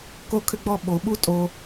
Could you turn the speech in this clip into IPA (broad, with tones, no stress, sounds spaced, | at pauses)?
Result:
k o˦ kʰ ʏ˦ ɡ͡b ɔ˦ ɓ o˨ ɓ u˦ tʼ o˦